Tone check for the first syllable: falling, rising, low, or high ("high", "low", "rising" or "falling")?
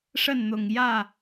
falling